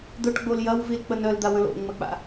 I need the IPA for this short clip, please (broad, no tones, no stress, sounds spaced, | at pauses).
d̪ ʊ ʈ ɡ͡b o l j ɐ w v i l k͡p ə n œ l d̪ a w ə̃ l o̰ ŋ͡m ə k͡p a̰